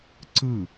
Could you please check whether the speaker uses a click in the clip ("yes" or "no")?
yes